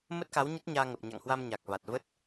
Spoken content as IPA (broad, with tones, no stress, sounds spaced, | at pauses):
m ə˦˥ t̚ k a˨˦ w ɲ ə˦˥ t̚ ɲ aː˧ ŋ ə˨˩ p̚ ɲ a̰˧˨ ŋ h w a˧ m ɲ a˨˩ k̚ v a˨˩ t̚ v ə˦˥ t̚